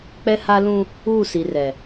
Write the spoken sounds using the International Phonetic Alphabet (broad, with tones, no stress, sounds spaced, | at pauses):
k͡p ɛ˦ h a˦ l ũ˦ | uː˦˨ s i˨ r ɛ˨